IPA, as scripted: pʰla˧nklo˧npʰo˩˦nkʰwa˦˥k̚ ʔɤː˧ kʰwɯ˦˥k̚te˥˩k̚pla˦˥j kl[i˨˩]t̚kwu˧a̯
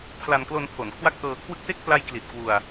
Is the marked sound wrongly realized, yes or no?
no